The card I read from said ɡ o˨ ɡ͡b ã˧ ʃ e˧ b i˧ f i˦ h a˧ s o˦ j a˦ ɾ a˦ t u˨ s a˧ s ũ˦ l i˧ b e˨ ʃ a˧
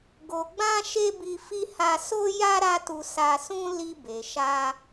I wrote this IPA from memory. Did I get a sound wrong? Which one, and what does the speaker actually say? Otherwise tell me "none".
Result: u˨ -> u˧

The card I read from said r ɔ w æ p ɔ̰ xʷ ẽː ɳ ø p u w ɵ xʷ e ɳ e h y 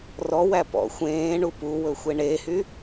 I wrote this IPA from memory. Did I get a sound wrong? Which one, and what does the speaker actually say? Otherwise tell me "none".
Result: ø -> u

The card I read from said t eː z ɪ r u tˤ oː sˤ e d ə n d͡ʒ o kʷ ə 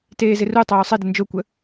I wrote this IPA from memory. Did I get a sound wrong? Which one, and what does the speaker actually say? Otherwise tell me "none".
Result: none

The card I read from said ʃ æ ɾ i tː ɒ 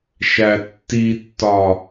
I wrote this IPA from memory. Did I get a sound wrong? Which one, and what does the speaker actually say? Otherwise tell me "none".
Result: ɾ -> tː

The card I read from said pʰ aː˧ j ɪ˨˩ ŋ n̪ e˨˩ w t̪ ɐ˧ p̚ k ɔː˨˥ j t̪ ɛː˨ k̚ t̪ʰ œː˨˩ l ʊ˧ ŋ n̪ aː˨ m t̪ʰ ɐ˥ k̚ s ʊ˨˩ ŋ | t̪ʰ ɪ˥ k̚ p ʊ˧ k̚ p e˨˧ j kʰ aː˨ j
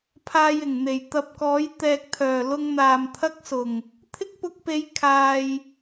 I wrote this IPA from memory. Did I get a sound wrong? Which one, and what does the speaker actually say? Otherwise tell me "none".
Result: w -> j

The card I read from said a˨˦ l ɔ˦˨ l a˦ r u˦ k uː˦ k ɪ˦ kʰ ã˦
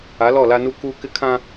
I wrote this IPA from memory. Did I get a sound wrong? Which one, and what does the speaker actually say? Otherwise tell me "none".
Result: r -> n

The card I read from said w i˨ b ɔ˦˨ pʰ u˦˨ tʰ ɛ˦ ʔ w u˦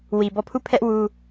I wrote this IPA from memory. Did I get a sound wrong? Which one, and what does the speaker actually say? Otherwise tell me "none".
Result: tʰ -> pʰ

